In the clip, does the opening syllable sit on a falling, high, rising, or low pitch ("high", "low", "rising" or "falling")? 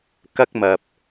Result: high